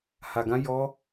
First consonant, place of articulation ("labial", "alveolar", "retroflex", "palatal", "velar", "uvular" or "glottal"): glottal